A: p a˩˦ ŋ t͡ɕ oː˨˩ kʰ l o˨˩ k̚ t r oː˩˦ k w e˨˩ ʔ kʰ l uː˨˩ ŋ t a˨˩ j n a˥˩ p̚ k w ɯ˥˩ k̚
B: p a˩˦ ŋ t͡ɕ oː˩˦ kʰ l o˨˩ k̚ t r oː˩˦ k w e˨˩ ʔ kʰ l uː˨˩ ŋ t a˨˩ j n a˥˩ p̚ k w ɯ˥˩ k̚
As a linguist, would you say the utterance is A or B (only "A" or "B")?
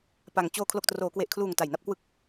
A